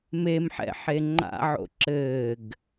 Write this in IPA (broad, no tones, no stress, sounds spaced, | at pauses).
m e m ħ ɛ̰ ħ e ŋ͡ǃ a̰ ʕ o̰ ǁ ɘː ɡ